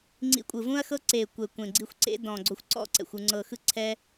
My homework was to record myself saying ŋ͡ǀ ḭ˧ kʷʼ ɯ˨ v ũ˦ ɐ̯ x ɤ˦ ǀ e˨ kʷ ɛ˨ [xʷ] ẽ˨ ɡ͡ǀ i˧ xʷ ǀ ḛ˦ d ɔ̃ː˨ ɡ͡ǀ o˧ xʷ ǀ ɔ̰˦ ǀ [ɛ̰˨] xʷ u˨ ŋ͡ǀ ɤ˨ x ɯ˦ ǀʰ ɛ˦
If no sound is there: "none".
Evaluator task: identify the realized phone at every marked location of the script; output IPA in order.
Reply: kʷ, ɛ̰˨

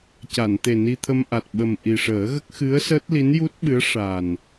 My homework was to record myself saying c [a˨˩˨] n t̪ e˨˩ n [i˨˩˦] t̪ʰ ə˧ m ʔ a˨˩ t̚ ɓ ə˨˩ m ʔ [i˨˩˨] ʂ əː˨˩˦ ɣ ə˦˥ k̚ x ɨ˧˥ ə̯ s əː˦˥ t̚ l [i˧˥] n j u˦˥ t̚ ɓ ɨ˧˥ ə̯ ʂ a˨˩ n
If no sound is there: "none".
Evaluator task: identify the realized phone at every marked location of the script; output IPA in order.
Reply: a˨˩˨, i˧, i˨˩, i˧˥

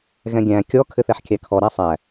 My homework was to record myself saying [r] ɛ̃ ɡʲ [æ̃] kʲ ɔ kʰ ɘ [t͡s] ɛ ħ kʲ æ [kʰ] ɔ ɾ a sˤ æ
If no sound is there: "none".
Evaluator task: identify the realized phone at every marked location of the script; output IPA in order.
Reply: ɣ, æ̃, θ, kʰ

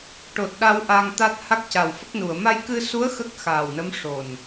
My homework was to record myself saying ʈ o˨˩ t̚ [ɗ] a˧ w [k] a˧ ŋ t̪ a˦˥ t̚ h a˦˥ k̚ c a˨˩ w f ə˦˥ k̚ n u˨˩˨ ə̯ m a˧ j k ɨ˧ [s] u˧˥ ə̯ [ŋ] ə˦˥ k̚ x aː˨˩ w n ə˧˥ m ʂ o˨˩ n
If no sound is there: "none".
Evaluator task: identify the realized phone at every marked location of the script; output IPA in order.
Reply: ɗ, ʔ, s, x

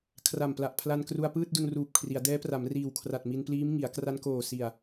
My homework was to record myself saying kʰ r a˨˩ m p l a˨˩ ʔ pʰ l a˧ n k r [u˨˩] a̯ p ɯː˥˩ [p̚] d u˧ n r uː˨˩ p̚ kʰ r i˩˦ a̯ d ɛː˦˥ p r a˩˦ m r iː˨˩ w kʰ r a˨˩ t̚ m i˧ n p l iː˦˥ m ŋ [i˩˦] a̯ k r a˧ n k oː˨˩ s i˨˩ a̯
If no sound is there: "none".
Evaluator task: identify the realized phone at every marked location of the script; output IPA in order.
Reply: u˧, t̚, i˩˦

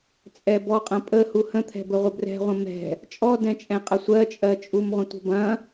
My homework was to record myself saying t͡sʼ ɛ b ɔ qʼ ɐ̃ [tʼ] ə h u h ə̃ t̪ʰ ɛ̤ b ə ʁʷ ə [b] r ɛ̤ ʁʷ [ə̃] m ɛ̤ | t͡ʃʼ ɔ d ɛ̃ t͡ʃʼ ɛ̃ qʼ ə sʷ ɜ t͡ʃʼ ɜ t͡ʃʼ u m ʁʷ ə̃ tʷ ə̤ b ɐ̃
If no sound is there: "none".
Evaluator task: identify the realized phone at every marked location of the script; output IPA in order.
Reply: pʼ, b, ə̃

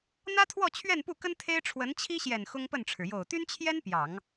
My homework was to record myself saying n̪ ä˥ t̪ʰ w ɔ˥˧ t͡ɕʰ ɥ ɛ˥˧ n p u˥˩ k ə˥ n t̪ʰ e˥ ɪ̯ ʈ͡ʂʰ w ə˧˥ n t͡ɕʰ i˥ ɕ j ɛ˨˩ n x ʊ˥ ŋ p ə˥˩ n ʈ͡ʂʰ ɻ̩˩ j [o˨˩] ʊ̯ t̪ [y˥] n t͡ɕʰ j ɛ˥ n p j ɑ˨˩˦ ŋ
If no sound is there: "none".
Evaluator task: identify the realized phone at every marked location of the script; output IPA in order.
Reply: o˨˩, y˥

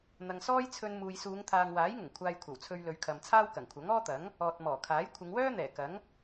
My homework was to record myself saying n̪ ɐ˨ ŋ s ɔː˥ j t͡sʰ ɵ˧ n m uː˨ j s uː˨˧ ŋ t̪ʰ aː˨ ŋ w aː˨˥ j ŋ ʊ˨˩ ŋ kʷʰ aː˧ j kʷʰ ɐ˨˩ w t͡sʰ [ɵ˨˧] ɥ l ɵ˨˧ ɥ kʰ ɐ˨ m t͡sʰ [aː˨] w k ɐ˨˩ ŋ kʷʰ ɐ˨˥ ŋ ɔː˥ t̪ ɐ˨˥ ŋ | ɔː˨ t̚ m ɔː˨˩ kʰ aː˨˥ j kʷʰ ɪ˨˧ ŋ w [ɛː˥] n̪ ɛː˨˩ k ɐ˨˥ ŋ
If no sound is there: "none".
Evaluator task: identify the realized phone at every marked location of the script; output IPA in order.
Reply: ɵ˧, aː˥, œː˥

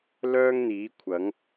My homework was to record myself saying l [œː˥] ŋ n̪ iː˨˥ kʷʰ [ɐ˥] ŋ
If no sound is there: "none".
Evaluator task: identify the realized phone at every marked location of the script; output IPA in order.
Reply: œː˥, ɐ˨˥

